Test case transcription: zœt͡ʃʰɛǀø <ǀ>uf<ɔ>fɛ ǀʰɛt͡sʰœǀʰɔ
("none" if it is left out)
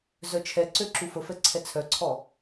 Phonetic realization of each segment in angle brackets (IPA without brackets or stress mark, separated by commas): ǁ, ə